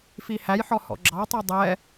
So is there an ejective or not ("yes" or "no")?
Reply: no